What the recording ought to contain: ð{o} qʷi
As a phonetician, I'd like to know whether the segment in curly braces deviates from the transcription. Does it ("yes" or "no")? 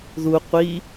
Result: yes